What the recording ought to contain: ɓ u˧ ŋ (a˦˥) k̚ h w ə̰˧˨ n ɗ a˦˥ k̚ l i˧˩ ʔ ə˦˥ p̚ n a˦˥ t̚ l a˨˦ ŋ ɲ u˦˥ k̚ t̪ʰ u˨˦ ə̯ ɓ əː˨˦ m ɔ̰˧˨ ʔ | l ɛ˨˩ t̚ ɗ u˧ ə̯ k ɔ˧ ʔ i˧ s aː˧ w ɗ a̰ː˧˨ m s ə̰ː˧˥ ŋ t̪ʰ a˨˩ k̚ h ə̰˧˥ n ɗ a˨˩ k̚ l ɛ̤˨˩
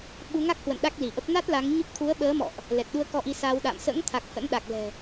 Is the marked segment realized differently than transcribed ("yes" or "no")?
no